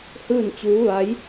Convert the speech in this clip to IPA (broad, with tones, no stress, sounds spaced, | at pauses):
h ɯː˥˨ n t͡ɕ uː˧˥ ʋ a˧˥ j